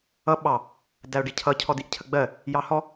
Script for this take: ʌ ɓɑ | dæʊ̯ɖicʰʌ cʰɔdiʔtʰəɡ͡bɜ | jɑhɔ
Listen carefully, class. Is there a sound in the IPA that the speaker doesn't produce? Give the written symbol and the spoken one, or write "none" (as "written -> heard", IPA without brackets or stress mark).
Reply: tʰ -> cʰ